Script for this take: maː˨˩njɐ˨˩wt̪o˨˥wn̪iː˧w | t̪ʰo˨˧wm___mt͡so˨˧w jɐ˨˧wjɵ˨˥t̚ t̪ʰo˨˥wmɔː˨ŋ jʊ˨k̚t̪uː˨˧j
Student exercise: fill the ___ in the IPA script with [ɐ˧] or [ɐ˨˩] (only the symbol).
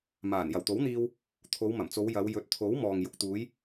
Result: ɐ˨˩